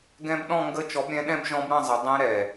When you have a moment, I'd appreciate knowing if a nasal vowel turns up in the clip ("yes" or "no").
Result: yes